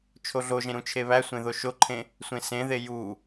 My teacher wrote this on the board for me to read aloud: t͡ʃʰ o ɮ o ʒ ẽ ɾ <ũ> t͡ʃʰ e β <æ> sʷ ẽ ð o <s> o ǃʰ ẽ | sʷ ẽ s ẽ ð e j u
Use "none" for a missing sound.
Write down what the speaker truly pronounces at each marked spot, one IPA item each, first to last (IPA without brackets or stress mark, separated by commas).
ũ, æ, ʃ